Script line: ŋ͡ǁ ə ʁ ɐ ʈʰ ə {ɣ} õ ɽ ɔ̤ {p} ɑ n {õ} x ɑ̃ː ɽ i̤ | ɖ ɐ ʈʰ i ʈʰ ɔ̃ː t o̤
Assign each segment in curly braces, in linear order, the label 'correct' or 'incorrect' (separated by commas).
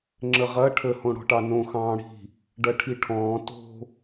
incorrect, incorrect, correct